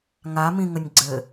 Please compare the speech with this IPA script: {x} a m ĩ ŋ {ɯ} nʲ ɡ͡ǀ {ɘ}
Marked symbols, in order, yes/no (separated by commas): no, no, yes